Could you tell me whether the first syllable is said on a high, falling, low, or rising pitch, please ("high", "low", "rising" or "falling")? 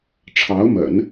rising